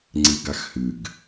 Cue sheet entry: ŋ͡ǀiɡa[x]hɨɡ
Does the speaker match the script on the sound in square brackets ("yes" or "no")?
yes